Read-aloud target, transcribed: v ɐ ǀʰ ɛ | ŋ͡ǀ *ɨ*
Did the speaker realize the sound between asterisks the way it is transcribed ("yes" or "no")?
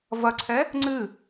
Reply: yes